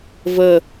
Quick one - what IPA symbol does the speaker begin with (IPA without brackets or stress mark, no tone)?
v